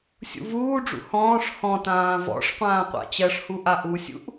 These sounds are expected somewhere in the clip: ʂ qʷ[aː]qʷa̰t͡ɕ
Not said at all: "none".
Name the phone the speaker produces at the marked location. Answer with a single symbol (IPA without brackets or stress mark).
ãː